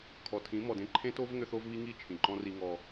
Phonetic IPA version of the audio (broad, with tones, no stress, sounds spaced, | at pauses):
kʰ ɔ˨ tʰ ĩ˨˦ m ɔ˨ d ẽ˦ ǃʰ ẽ˦ t o˦ v ŋ ʏ˦ θ o˦ v β i˦ ŋ i˦˨ t͡ʃʰ ĩ˨ ǃ ɔ̃˦ r i˦ ŋ ɔ˦